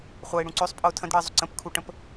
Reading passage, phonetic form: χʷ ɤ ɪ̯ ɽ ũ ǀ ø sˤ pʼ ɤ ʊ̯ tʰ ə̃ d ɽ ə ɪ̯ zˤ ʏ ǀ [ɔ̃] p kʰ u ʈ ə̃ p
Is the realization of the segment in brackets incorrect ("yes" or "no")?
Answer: yes